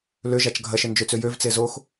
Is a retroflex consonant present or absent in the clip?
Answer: absent